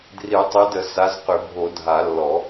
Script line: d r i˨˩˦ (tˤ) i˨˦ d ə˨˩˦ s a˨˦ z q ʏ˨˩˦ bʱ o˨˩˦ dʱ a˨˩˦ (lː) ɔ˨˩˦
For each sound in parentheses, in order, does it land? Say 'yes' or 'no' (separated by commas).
yes, yes